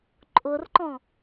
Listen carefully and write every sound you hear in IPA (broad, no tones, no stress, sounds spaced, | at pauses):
ǃʼ ʊ r ǃ ɔ̃